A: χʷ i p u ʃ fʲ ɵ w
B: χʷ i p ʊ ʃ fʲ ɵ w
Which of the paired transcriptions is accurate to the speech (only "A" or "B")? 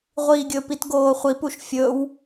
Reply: A